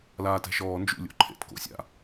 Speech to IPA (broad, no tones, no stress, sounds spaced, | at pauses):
l aː t ɛ̤ ʃ ɔː n d͡ʒ ṵ lʲ o̰ ǃʰ ḛ t k o̰ sʲ a̰